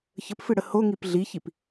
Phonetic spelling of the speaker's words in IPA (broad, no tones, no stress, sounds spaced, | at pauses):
ç ə p f ɨ ɽ ə h o ŋ i p ɮ i ç i p